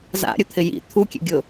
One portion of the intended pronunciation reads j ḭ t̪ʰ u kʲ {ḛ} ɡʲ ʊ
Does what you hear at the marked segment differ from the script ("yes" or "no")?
no